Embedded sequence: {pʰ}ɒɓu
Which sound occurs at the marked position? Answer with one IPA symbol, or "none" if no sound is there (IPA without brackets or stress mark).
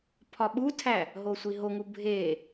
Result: pʰ